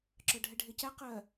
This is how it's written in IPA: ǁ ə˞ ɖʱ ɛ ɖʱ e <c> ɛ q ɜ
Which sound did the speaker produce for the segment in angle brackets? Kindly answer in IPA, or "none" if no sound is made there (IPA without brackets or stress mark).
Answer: c